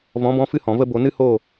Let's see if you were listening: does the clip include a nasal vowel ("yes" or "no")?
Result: yes